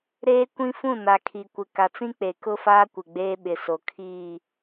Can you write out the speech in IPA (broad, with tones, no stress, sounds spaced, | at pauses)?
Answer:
ɾ eː˦ kʷ ĩ˦ f ũ˦˨ n a˨ kʰ i˨ kʷ ɪ˨ k a˨ t͡s ĩ˦ k͡p e˨ k ʊ˦ f aː˦ kʷ ɪ˨ ɡ͡b eː˦ ɓ ɪ˨ s o˨ kʰ iː˦˨